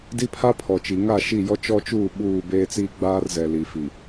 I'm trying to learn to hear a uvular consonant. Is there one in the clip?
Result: no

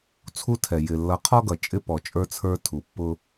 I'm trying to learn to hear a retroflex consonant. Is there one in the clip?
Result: no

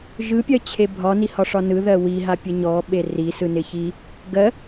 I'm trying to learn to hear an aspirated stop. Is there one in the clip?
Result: yes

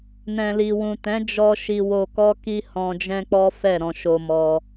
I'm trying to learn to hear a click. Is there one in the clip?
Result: no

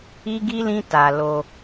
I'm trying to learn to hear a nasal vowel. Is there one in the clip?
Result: yes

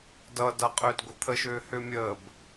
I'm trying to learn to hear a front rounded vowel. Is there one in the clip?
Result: yes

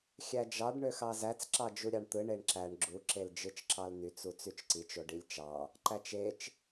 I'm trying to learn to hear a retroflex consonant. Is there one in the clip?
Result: yes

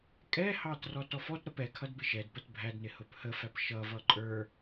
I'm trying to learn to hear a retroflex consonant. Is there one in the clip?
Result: no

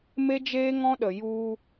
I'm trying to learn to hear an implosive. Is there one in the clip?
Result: yes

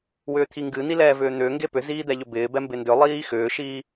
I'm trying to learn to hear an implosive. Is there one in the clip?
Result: no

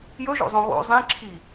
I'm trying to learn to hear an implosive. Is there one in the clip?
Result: no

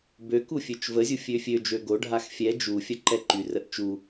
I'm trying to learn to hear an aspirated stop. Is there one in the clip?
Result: no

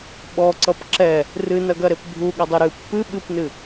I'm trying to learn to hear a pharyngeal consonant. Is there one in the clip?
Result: no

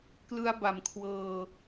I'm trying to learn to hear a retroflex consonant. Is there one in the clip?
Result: no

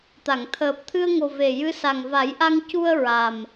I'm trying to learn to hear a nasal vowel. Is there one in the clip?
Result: no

